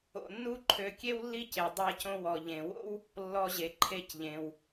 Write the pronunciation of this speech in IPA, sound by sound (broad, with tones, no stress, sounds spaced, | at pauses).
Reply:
o̰˧ nː u˥ ǃʰ ø˧ kʲ e˥ w lː i˥ c e˩ dˤ a˧ c õ˧ w ɔ˩ ʎ ẽ˩ w o̰˥ w | lː ɔ˧ ʑ e˩ ǃʰ e˧ c ʎ ẽ˩ w